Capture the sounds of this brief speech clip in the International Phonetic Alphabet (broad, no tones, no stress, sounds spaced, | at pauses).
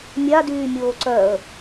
mʲ a d yː mʲ oː ǀ œ ə̯